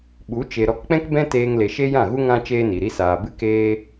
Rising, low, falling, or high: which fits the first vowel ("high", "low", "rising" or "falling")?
rising